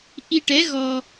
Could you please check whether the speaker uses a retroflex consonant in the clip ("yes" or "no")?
yes